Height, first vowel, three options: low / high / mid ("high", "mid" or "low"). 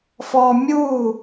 mid